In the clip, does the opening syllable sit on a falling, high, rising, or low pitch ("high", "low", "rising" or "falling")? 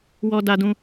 high